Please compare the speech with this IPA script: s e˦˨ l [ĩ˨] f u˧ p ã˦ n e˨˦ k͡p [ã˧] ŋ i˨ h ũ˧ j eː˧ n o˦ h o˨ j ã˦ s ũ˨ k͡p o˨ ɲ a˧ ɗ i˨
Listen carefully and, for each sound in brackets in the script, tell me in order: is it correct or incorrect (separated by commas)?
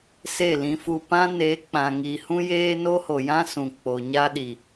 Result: incorrect, incorrect